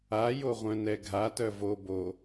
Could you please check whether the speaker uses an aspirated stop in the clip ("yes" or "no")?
no